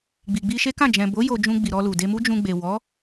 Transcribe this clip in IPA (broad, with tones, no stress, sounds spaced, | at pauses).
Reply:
ɡ͡b i˨ ɡ͡b i˧ ʃ e˦ k ã˦˨ d͡ʒ ɛ̃˨ b o˨˦ j o˧ d͡ʒ ũ˧ ɡ͡b i˨ ɾ ɔ˧ l u˨ d e˧ m u˦ d͡ʒ ũ˧ ɡ͡b e˨ w ɔ˨˦